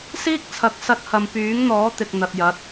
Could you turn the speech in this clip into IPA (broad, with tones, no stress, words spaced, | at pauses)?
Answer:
siː˥k̚t͡sʰɐ˨˥k̚ sɐ˧t̚hɐ˨mpyː˨˥ŋn̪ɔː˨˥ t̪ɪ˨k̚n̪ɐ˨t̚jɐ˨˥t̚